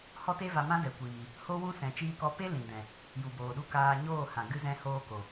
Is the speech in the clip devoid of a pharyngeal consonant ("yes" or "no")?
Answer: yes